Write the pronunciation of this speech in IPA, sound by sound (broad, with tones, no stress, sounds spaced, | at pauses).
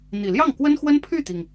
n̪ i˨˩ l j ɑ˥˩ ŋ k w ə˥ n x w ə˥ n pʰ y˥˩ t̪ i˩ ŋ